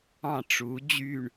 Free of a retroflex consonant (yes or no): no